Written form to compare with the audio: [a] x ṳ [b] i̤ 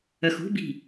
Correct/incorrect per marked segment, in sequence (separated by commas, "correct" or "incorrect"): incorrect, correct